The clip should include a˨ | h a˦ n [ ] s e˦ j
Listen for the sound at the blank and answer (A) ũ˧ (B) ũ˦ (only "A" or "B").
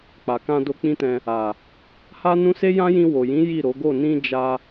B